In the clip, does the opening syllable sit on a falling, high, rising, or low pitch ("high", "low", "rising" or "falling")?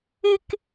high